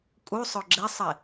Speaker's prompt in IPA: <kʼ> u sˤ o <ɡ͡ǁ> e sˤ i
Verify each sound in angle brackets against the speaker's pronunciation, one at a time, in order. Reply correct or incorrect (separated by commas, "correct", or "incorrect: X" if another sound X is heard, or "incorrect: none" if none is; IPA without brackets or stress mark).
correct, correct